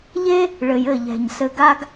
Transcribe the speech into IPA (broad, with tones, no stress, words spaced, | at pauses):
ʎe˦ | ɭɘ˨jɘ˦˨ʎɛ̤˨ɲ sɘ˧ɡa˦ɡ